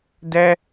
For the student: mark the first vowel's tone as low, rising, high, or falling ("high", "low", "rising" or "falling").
high